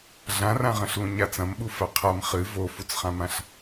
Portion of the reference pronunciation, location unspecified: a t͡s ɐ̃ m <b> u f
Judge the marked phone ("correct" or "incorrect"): incorrect